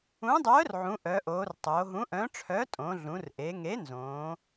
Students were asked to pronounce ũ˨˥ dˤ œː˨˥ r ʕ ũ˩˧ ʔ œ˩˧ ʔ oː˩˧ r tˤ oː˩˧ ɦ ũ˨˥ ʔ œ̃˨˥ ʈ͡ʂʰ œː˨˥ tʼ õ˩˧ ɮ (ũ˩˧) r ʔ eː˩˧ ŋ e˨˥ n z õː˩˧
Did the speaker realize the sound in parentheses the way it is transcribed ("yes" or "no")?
yes